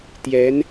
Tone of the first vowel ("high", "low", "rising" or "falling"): rising